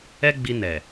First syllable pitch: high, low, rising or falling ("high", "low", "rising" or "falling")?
high